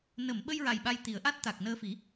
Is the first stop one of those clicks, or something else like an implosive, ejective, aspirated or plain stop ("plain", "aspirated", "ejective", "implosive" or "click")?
implosive